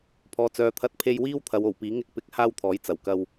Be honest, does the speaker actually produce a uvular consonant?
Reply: no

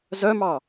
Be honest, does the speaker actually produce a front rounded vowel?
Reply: yes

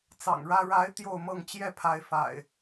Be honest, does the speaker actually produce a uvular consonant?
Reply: no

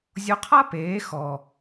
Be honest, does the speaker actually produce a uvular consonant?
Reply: yes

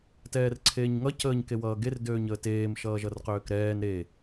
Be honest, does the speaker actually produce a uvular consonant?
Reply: yes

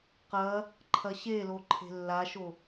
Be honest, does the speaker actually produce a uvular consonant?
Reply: yes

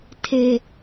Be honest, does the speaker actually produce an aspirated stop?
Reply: yes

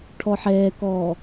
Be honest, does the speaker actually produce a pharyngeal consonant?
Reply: yes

